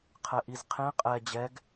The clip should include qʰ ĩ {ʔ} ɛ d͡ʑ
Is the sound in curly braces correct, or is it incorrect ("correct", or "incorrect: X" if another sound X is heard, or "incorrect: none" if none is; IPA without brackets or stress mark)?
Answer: incorrect: qʼ